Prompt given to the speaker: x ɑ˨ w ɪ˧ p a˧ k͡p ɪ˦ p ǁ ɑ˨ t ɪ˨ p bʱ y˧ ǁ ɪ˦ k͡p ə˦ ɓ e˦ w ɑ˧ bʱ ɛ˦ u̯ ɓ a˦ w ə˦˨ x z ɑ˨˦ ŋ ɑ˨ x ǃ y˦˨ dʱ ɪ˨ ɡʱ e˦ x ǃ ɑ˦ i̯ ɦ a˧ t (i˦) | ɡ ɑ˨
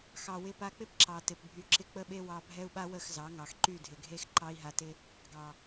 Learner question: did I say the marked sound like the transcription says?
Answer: no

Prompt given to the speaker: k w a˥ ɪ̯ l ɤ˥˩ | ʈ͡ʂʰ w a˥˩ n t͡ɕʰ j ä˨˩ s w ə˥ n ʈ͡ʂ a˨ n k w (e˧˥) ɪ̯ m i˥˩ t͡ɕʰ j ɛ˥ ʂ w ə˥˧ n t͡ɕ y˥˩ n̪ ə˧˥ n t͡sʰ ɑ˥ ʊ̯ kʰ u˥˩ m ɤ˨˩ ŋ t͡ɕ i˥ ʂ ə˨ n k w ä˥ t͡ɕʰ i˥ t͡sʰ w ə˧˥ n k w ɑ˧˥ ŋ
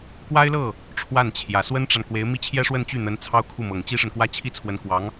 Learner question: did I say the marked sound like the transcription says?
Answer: yes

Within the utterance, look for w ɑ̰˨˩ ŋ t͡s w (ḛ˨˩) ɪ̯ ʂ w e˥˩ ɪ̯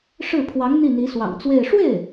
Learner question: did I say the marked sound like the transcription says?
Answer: no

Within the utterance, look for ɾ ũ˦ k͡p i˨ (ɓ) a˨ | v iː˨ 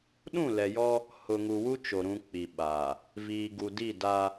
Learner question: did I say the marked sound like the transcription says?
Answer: yes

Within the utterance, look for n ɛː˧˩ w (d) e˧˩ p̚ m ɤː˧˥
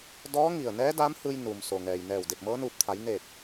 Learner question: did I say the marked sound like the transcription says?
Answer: yes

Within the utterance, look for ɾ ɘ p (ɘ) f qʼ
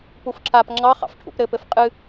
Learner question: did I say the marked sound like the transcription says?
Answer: yes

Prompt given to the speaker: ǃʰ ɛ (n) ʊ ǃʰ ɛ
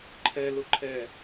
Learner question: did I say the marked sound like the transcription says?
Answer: no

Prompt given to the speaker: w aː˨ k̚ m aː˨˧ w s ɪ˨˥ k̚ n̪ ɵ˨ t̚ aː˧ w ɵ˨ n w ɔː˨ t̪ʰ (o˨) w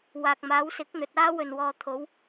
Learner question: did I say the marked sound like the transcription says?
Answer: no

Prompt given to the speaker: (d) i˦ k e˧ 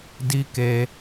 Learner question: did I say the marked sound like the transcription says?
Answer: yes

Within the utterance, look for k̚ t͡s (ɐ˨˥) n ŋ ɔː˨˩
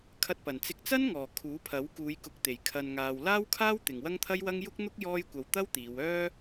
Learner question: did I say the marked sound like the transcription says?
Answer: no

